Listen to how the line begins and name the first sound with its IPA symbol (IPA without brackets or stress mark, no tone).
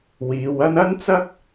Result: w